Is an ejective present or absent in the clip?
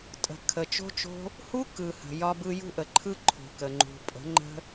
present